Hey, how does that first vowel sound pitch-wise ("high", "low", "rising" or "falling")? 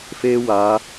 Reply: high